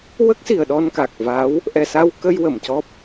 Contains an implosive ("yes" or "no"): yes